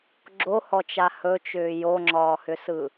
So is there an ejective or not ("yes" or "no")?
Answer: no